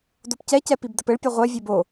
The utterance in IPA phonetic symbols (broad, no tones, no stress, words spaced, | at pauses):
dopcɛcɛ pibdɘpɘɭpʲo ʁʷɛvʲɛb o